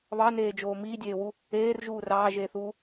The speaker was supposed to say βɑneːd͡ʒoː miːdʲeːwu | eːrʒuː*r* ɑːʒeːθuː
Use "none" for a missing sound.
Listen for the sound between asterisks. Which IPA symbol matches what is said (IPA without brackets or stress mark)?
r